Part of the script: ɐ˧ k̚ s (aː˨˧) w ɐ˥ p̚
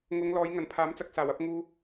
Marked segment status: incorrect: aː˨˩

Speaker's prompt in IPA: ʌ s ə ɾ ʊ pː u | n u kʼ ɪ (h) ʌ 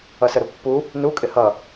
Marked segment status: correct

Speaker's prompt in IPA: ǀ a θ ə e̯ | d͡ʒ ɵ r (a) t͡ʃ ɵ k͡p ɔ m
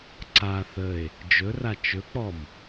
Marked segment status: correct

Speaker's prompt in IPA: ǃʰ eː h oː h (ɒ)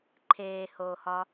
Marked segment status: correct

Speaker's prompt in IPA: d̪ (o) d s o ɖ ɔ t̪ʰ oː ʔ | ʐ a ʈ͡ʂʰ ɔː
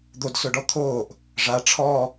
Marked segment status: correct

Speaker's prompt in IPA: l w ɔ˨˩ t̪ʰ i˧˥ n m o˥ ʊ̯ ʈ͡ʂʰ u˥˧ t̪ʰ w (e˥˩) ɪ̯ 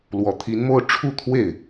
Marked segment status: correct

